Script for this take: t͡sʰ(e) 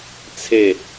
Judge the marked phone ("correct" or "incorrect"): correct